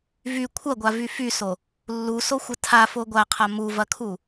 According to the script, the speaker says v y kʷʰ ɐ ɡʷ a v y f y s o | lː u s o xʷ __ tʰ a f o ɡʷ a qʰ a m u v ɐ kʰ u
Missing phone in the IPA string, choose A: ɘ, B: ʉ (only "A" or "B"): A